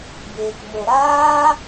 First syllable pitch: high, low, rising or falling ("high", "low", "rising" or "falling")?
low